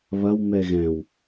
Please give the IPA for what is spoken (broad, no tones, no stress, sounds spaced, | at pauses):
β ɐ w m ɛ ɣ ɛ̃ w